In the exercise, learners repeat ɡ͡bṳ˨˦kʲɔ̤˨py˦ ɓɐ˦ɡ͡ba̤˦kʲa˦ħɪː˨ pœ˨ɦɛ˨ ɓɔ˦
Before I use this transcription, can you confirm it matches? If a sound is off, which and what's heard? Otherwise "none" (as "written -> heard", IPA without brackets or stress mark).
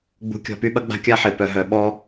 ɛ˨ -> œ˨